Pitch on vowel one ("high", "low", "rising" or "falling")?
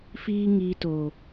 high